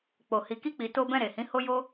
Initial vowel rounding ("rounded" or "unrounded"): rounded